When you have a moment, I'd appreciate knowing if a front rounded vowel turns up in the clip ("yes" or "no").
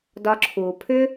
yes